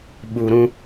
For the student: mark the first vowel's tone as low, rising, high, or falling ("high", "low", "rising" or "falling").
low